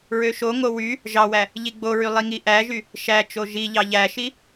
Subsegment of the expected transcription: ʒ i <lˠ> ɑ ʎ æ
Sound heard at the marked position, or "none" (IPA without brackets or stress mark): ʎ